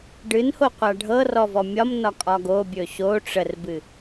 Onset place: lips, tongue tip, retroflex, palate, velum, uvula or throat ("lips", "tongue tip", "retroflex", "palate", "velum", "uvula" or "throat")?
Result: retroflex